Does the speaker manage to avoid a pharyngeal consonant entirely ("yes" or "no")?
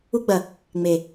yes